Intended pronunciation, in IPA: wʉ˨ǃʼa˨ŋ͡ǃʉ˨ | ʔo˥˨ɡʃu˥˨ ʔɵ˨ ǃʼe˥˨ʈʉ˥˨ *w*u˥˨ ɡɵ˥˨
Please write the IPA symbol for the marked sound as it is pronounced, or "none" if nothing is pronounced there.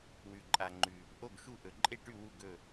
w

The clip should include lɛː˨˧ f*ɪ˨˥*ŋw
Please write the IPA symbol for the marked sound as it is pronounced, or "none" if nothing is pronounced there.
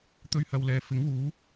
ɪ˨˥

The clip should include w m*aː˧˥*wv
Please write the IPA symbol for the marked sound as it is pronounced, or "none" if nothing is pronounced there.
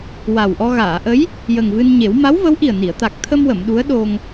a˧˥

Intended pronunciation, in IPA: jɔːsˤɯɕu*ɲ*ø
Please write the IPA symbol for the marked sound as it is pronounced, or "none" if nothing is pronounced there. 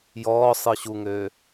ŋ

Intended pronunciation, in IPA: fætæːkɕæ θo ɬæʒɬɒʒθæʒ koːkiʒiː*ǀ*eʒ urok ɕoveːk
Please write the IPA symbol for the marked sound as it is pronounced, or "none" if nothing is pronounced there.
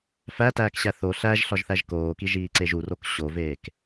ǀ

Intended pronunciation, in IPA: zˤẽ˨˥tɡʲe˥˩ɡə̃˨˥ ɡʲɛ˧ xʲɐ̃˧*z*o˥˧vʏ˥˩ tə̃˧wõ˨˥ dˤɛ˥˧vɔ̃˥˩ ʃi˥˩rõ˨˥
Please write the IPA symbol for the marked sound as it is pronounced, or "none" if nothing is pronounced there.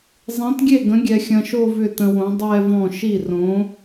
ʃ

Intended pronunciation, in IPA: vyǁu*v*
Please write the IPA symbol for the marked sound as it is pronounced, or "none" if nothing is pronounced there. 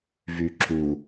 none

